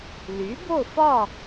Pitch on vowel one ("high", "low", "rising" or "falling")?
rising